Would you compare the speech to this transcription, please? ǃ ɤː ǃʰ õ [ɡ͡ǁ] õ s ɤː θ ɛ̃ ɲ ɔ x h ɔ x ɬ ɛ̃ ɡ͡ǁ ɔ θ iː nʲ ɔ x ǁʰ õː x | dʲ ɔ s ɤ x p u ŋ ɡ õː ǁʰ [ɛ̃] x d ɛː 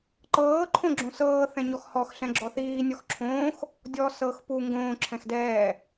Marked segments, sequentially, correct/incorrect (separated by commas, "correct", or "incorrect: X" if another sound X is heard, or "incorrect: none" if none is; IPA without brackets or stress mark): correct, correct